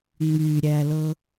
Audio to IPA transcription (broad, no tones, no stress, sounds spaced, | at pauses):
ŋ͡m y ɾʲ æ l ɤ